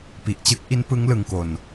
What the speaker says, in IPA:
p i˨˩ ʔ t͡ɕ ɯ˦˥ k̚ ʔ i˦˥ n p ɯ˦˥ ŋ l ɯ˧ ŋ k o˧ n

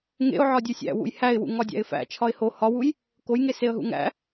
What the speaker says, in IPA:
ŋ ḛ ʊ̯ ʕ ɒ dʲ u sʲ æ̰ w ṵ j h æ ɪ̯ w ṵ ŋ ɒ dʲ æ̰ ɪ̯ f æ̰ t͡ʃʰ ɒ ɪ̯ h o h ɒ w u j | k o j ŋ e s e ə̯ ɦ ṵ ŋ æ̰

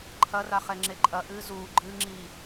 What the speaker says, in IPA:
ǃʰ ɐ r a χ ɛ ŋ͡ǁ e ǃʼ ɐ ʔ ɨː z uː ɡ͡ǃ ɨː ŋ͡ǁ iː

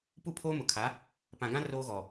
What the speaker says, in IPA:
p u˦˨ pʰ oː˦ m ʊ˨ kʰ a˨˦ | p ã˨ ɡ ã˦ r oː˦ ɣ ɔ˨

